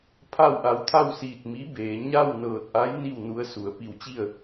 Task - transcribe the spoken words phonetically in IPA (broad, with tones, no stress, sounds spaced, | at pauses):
pʰ a˥˨ w ʔ a˧˥ w t̪ʰ a˥˨ w s iː˧˩ t̚ m i˧˥ b eː˩˧ ɲ a˥˨ w n ɤː˧˩ t̚ ʔ a˧˥ j n i˥˨ w n u˧˥ ə̯ s u˩˧ ə̯ p i˧˩ w t͡ɕ i˥˨ ə̯